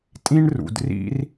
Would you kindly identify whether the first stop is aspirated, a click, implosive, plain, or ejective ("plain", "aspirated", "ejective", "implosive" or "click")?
ejective